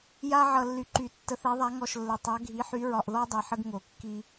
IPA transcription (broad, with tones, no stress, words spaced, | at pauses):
ja˦ʕʌ˨ lːy˨ǃy˨˩˦ tːə˨˥θɛ˨˥ðˤa˨˥ ŋɔ˨ʃlːɘ˨ tˤa˨˥ɡʱi˨˥ħy˨˥ ɹɒ˨ʔðɔ˦dˤɛ˨ ħə˦ɡŋo˨˩˦kːi˦